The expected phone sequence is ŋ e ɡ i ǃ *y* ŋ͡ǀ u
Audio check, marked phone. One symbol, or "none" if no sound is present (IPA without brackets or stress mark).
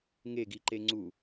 e